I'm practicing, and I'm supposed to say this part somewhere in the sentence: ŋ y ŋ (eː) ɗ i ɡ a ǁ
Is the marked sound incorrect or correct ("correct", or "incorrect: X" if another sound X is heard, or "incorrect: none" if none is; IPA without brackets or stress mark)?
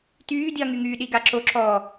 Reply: incorrect: yː